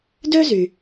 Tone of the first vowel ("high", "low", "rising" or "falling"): high